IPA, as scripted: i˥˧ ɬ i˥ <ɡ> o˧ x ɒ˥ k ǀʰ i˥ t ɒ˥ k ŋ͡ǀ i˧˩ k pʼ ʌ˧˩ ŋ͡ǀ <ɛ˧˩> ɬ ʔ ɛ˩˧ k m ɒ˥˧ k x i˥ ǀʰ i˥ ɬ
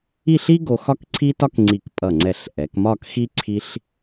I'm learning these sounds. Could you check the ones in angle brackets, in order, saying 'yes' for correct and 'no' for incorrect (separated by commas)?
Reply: yes, yes